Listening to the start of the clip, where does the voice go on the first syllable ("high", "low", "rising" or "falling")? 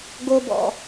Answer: high